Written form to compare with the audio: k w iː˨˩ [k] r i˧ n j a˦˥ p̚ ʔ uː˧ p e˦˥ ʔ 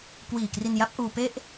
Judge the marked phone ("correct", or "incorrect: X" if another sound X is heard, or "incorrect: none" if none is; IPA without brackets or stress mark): correct